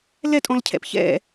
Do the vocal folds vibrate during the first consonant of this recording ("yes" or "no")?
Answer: yes